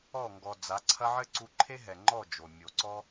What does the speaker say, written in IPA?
ɔ˦˨ ŋɡɔ˨ d͡za˨˦ǀʰɐ˦ ʕɘ˦ǀu˧ǃʰe˦ɦɛ˨ ŋ͡ǃɔ˦˨ d͡ʒo˨ mʲo˨ǀɔ˦

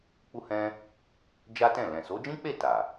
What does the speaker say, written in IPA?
k͡pu˧hɛ̃˧ | d͡ʒa˦tɛ̃˦˨ lɛ̃˨so˨˦d͡ʒĩ˦k͡pe˦˨ ta˨

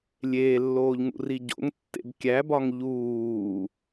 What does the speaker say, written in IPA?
lʲeːlːoːʎŋṵri ɟo̰ŋtːḛb kʲæ bɒŋʎuː

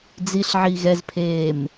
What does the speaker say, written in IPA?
d͡ziɬʕi ɣɛzpʰeːm

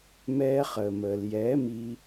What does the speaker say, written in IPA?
mɛː˧ χəː˨məː˨l jɛː˨˦miː˧

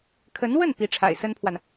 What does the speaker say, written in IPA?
kʰə˧˥nwə˥˩n pi˧˥ʈ͡ʂʰa̰˨˩ɪ̯sə˥npʰwa˨n

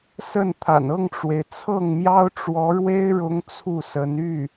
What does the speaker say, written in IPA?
sə˥˩nt̪ʰa̰˨˩n ɤ˥˩ŋʈ͡ʂwe˩ɪ̯ t͡sʰɤ˥˩ŋmjɑ˥ʊ̯ʈ͡ʂwɔ˧˥ɻwe˥ɪ̯ ɻʊ˥ŋt͡sʰu˥˩sə˧˥n y˥˩

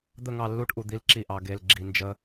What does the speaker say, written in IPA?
d̪ə˦˨ŋɑ˦˨lːu˦ʈ ʔu˨d̪i˦lǁi˦˨ʔɑ˨ ɡe˨l ɡ͡ǁi˨nd͡ʒə˦

